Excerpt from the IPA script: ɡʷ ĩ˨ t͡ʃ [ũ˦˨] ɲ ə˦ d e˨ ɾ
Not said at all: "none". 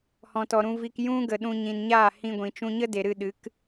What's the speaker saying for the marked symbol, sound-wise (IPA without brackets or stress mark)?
ũ˧